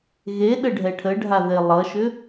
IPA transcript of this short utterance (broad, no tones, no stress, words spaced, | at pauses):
ɣeɗə ɖʱɛʈʰəɖʱaðe lˠʌʃʏ